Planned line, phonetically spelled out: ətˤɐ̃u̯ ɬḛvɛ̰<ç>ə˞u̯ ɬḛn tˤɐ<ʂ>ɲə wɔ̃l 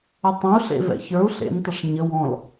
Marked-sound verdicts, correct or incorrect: correct, correct

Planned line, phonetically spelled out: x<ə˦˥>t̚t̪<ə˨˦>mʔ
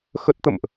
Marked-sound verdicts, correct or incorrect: correct, incorrect: ə̰˧˨

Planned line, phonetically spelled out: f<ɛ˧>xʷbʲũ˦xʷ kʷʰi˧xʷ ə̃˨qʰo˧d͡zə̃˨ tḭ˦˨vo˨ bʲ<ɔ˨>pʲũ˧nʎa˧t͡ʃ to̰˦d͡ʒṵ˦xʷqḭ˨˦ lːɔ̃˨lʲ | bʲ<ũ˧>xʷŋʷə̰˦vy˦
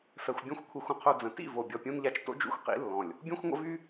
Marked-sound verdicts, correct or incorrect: correct, correct, incorrect: ũ˦

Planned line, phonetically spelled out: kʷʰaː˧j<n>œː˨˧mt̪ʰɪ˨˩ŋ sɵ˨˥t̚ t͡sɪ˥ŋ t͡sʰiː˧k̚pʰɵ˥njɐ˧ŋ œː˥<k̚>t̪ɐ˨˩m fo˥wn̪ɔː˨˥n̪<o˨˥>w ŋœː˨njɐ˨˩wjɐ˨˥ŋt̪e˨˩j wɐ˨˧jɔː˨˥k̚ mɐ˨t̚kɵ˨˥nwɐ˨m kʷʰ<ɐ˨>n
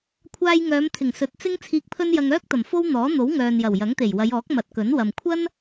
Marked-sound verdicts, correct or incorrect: incorrect: ŋ, correct, correct, incorrect: ɐ˥

